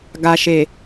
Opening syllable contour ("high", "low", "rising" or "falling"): low